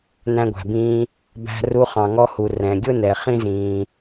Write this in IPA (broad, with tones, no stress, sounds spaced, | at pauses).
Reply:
n æ̃˧ ɡʷ æ̤˩ b ĩː˧ | b æ̤˧ r u˧ χ ɑ̃˩ ŋ ɔ˧ h u˩ r ɛ̃˩ ɡʲ ʊ˥ n ɛ˩ χ ĩ˥ z ĩː˩